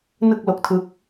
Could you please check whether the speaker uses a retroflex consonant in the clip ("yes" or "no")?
no